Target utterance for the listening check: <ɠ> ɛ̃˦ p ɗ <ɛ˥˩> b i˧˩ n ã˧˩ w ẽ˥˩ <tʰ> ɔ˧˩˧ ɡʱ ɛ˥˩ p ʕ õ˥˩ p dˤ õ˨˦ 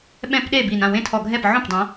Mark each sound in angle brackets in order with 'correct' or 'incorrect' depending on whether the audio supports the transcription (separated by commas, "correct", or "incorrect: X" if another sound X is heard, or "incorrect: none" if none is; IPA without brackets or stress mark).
incorrect: ɓ, incorrect: e˥˩, correct